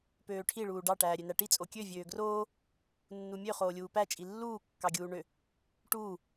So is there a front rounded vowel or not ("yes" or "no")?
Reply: yes